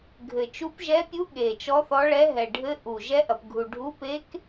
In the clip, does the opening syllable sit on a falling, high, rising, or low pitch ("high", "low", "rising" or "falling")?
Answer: low